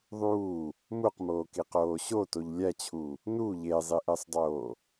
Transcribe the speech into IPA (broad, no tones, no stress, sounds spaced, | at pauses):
ðˤ uː | m u q m oː k i q oː ɕ o t o ʎ lʲ æ t͡ɕʰ uː | n u ʎ e zˤ i ʔ e sˤ dˤ oː